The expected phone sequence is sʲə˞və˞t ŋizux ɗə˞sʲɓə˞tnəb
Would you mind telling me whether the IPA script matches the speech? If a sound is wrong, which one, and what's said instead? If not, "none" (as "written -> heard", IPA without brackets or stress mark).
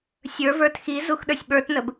ŋ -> x